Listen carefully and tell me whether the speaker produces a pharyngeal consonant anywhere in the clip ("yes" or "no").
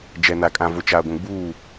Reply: no